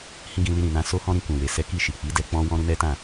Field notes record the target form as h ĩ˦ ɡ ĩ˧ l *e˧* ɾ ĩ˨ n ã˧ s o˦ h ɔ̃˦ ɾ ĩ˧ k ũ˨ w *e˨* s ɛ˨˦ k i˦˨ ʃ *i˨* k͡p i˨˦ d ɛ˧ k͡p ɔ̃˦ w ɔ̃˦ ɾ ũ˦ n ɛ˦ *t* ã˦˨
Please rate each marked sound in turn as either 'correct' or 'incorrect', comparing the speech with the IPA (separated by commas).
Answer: incorrect, correct, correct, correct